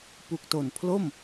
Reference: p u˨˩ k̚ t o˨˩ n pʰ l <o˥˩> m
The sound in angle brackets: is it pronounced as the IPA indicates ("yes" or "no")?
yes